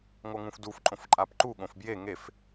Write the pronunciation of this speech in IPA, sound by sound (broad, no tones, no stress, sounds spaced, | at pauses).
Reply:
ŋ o ŋ ũ f d u f ǃʼ õ f ǃʼ a p ǃ u ɠ õ f b j e ŋ e f